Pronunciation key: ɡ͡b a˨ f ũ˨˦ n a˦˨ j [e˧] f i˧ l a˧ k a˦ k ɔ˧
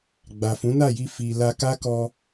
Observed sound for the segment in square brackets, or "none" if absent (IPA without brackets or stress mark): i˧